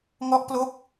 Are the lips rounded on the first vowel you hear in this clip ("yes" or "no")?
yes